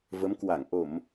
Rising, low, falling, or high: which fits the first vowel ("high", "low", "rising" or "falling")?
rising